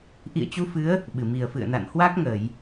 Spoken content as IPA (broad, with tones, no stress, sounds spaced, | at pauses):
ʔ ḭ˧˨ ə̯ t͡ɕ u˧ f ɨ˨˦ ə̯ | ɓ ɨ˧˩ m i˨˩ ə̯ f ɨ̰˧˨ ə̯ n a̰˧˨ n h w a˦˥ k̚ ŋ ə˧˩˨ j